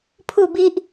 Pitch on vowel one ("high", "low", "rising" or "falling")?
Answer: falling